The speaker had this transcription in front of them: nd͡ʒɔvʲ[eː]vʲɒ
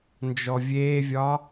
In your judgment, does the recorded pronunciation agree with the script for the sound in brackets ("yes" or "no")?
yes